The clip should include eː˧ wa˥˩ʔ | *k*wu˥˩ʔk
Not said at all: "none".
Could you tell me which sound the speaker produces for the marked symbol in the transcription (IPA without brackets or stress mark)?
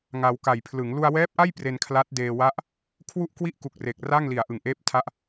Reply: kʰ